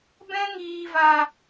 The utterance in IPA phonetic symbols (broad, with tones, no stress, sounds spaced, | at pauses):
b ɛ̃˦ ŋ iː˨ v a˨